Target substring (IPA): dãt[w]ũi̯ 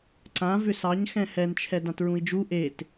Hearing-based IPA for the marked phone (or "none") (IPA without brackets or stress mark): ɹ